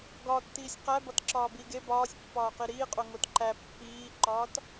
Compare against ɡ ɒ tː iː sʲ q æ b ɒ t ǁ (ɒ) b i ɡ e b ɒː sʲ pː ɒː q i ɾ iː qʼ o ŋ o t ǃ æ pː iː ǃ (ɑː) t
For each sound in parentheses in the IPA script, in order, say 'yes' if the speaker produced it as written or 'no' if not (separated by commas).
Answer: no, no